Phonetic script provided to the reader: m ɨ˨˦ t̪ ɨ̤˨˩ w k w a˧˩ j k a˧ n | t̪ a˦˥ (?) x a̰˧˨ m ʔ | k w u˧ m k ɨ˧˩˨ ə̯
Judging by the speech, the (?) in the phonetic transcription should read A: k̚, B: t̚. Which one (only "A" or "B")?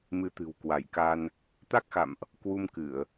A